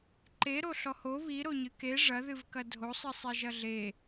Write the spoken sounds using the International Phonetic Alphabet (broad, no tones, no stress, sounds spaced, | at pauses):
ǃ e ɾ o ɬ ɔ h o β i ɾ o ɲ ɨ k e ʐ ɐ ð ɨ v k ɐ dʱ o sˤ ɨ sˤ e ʒ ɐ ɮ e